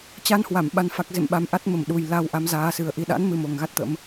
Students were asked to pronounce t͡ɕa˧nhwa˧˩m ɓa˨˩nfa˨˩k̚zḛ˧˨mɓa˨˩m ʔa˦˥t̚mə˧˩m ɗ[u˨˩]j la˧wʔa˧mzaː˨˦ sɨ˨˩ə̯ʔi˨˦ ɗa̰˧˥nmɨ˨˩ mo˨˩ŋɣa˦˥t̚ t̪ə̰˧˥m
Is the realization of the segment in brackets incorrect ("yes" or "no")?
no